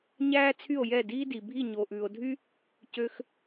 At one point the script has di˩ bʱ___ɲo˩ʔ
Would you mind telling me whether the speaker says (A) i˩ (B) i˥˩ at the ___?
B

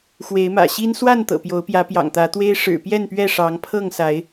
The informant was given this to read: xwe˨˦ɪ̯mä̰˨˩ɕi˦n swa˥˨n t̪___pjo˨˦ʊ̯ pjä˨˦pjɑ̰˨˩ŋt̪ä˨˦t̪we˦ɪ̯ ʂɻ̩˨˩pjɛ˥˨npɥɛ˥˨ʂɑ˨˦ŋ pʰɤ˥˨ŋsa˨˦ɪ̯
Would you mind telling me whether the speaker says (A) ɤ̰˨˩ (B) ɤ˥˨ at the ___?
A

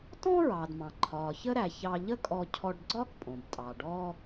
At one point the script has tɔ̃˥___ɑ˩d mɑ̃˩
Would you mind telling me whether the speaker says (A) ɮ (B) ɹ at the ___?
B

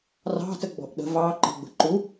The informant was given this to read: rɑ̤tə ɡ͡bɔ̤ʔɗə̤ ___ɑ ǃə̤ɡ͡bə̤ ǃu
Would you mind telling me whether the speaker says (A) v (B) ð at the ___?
A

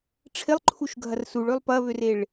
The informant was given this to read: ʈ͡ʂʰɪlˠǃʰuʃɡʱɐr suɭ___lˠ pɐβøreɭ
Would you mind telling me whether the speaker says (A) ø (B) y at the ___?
A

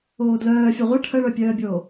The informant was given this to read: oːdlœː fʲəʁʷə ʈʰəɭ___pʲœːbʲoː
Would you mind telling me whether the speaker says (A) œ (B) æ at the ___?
A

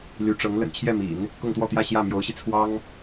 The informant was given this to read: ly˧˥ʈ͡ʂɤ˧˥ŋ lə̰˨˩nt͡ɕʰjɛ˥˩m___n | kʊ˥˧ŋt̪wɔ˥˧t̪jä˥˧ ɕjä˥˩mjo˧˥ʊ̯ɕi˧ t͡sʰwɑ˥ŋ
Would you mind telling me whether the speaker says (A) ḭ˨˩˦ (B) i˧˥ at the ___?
A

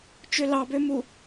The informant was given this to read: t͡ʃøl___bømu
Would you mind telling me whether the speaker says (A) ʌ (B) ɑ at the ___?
B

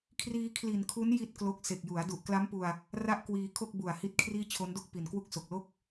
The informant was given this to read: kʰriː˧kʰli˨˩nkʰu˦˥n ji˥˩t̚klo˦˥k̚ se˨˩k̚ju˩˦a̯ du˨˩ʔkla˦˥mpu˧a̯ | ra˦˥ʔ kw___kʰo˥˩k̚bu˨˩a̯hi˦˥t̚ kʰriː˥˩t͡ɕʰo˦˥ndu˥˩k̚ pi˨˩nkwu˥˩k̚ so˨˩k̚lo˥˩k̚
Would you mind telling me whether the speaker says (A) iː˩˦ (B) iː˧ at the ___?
B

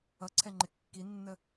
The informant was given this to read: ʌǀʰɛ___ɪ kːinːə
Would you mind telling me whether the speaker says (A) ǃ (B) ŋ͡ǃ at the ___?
B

